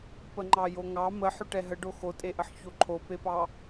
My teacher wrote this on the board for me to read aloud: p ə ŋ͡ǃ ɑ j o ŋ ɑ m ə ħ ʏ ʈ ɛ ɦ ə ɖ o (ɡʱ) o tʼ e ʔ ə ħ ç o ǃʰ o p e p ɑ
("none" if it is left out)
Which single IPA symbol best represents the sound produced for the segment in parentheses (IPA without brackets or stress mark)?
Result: x